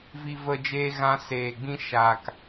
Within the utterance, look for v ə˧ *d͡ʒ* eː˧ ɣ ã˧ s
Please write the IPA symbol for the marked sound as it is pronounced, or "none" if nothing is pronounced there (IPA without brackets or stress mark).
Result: d͡ʒ